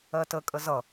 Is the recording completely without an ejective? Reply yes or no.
no